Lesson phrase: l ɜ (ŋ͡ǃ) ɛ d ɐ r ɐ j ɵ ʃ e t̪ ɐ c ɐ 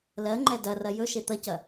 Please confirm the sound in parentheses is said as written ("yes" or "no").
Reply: yes